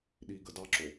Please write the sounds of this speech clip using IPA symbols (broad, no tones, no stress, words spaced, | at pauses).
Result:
ɗiɡə dɑǁo